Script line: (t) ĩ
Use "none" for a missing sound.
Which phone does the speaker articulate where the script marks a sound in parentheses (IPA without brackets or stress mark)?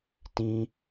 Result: t